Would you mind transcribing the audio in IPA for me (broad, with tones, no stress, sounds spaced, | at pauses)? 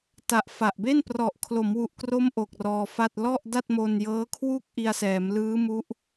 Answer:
t a˨˩ ʔ f a˨˩ ʔ b e˥˩ n p r ɔ˨˩ ʔ kʰ l o˩˦ m w u˨˩ ʔ k r o˦˥ m ʔ o˨˩ k̚ r ɔː˧ f a˥˩ t̚ l ɔ˥˩ ʔ d a˥˩ t̚ m o˧ n j ɤː˦˥ kʰ w u˥˩ k̚ ʔ i˧ a̯ s ɛː˩˦ m l ɯː˦˥ m u˦˥ ʔ